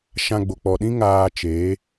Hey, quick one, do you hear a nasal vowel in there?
yes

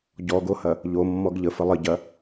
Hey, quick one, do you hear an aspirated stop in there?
no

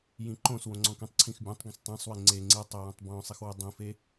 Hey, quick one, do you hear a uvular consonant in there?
no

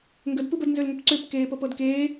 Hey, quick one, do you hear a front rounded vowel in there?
yes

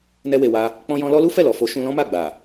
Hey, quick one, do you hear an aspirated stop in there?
no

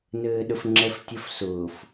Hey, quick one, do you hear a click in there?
yes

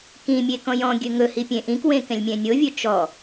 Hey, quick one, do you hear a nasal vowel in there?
yes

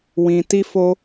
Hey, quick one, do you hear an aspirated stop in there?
no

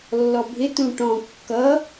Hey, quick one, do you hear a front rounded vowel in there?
no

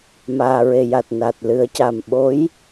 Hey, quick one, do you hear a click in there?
no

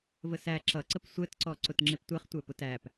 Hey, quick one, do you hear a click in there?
yes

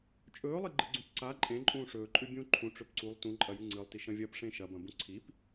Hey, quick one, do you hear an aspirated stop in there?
yes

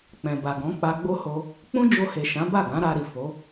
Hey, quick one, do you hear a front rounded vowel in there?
no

